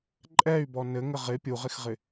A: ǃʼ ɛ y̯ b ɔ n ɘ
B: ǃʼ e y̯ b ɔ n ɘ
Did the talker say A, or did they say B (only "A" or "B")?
A